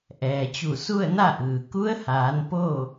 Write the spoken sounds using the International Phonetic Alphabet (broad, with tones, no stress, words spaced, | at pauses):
ʔɛː˩t͡ɕu˧˩ su˥˨ə̯na˥˨ʔɯː˩ ku˧˥ə̯haː˩˧n po˥˨